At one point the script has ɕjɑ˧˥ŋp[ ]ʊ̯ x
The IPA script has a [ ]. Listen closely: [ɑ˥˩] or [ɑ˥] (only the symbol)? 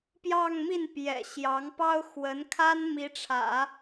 ɑ˥